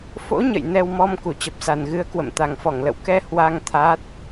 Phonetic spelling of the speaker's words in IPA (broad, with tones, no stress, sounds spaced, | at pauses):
f o̰˧˥ ɲ ə̰˧˨ j n ɛ˧ w m ɔ˧ m k u˧˩ t͡ɕ ə˨˩ p̚ s a˨˩ n ɣ ɨ˨˦ ə̯ k w ə̰˧˨ m t̪ a˨˩ ŋ f ɔ˧˩ ŋ l ə̰˧˨ w k ɛ˧ h w a˧ ŋ t̪ʰ aː˦˥ t̚